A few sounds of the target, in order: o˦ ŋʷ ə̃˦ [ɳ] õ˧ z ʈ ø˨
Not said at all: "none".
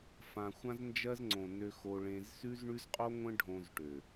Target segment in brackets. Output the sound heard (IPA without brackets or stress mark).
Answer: ɖʱ